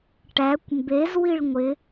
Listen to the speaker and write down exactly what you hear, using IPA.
ʈ æ kʷ m b e z w i ɭ ŋʷ ɪ

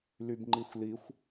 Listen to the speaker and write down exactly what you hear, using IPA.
l y b ŋ͡ǃ i xʷ l i xʷ

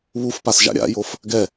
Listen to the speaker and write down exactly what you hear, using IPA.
β u f p a s ʒ a̰ ɾʲ a̰ j o f | ɡ ɛ

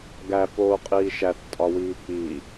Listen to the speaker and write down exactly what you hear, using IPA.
ɡ æ f oː qʼ iː ʃ æ θ tʼ ɒ w iː k͡p i

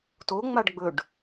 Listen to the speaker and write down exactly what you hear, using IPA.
t o ŋ͡m a ɖ ɡ͡b ɵ ɖ

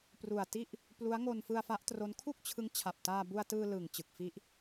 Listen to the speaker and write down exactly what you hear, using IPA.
p r u˨˩ a̯ t i˥˩ ʔ | p l u˦˥ a̯ ŋ o˧ n f ɯ˧ a̯ f a˦˥ ʔ t r o˦˥ n kʰ u˥˩ k̚ t͡ɕʰ ɯ˦˥ ŋ t͡ɕʰ a˨˩ p̚ t aː˧ b u˧ a̯ t ɯː˧ l ɯ˨˩ ŋ t͡ɕ ɯ˨˩ k̚ f i˦˥ ʔ

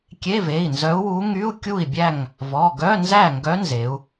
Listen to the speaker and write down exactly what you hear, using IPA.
kʲ e˧˥˧ v e˩˧˩ i̯ n z œ˧˥ u̯ w u˧˥ ŋ y˧˥˧ u̯ kʲ u˥˨ i̯ bʲ æ˥˨ ŋ | v ɔ˩˧˩ ɡ œ˧˥˧ n z æ˥˨ ŋ ɡ œ˧˥ n z e˩˧ u̯

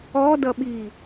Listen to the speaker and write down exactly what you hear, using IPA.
ɔ d ʌ ɓ iː

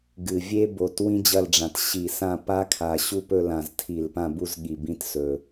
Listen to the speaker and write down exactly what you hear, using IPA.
ɡ ɨ˨˩ vʲ e˦˥ b o˨˩ t w ĩ˦˥ d͡ʑ ɐ˦˨ l ɖ͡ʐ ã˨˩ t ɕ i˧˩˧ s ã˦˨ p a˦˥ kʰ a˨˩ ɕ u˦˨ p ɵ˦˨ l ã˧˩˧ z tʰ i˧˩˧ l p ã˦˨ b u˦˨ z ɠ i˨˩ b ĩ˦˥ t s ɵ˨˩

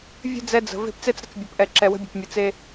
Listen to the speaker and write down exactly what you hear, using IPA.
vʲ ə̤˦ d͡z ɛ˦ d͡z ə̤˨ v e̤˦˨ p t͡s e˦ t͡s ɾ ə̤˦ t͡s bʲ ə˨ p ʔ ɛ˨ ǁ ɛ˨ w ə̤˦ bʲ ə̤˨ p mʲ ɨ˨ t͡s e˦

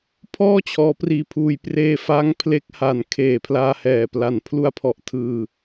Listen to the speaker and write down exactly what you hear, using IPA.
pʰ ɔː˥˩ t͡ɕʰ ɔː˦˥ p r iː˧ pʰ uː˧ j p r eː˧ f a˦˥ ŋ pʰ l e˦˥ k̚ h a˨˩ n kʰ eː˨˩ pʰ l aː˧ h ɛː˨˩ p l a˨˩ n pʰ l u˧ a̯ pʰ ɔ˨˩ ʔ tʰ ɯː˨˩

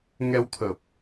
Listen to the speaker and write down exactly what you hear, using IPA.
ŋ ɛ˧ w t̪ʰ ə˨˩ p̚

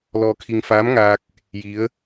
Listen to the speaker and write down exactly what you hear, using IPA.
l ɔː˧ kʰ i˧ ŋ f aː˧˥ m ŋ aː˧ k̚ | j i˧˥ ə̯

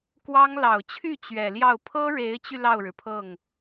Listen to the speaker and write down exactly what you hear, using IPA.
k w ɑ˥ ŋ l ɑ˨˩ ʊ̯ t͡ɕʰ y˥˩ t͡ɕ ɥ ɛ˨˩ l j ɑ˥˩ ʊ̯ pʰ ɤ˥ ɻ e˧˥ ɪ̯ t͡ɕ y˧ l ɑ˥˩ ʊ̯ ɻ ɻ̩˩ pʰ ɤ˥˩ ŋ

